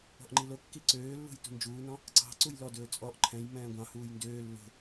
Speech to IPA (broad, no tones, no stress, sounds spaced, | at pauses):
ɔ̤ ʔ ŋ͡ǃ i l o kː i ǀ øː lː ṳ j t ṳ n d͡ʒ uː n ɔ̃ | ǀ ɑ̤ ǀ u j l ɔ d ɵː t͡sʼ ɔ ʔ ǃʰ ɛ̃ j m ɛ̃ː ɡʷ ɑ̃ h uː j n d øː lː o̤